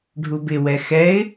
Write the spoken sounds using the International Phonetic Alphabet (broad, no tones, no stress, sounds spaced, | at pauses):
ɖʱ u b ɪ w ɛ x ɛ ɪ̯